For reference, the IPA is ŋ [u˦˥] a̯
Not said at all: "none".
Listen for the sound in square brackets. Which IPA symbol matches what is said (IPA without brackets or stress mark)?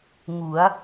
u˩˦